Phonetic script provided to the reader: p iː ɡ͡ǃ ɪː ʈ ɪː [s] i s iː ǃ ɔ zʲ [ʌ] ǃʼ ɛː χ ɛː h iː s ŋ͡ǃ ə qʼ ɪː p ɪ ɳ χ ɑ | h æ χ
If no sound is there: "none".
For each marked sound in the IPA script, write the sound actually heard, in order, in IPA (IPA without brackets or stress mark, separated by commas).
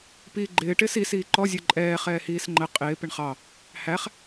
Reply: s, ə˞